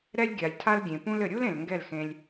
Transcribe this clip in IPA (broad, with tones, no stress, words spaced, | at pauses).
ɾɛ˦lʲɡʲa˨lʲtʰa˦lɡʲẽ˨ pũ˧lɘ˨ɾʲu˦l ẽ˨lŋɡɛ˦˨lxẽ˧lʲ